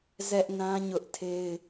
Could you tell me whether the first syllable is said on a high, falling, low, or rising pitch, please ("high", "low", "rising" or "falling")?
high